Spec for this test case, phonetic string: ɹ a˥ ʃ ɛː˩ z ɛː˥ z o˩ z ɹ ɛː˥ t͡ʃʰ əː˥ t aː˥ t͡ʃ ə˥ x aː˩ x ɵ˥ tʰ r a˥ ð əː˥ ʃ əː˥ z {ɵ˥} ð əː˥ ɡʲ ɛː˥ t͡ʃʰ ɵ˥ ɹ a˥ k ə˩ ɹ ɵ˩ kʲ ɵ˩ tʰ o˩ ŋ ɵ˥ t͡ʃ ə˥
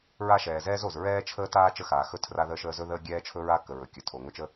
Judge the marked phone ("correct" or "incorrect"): correct